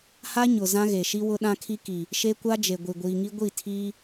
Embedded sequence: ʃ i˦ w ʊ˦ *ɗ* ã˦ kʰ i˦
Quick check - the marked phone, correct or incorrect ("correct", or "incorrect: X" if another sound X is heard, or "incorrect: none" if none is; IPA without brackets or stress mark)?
correct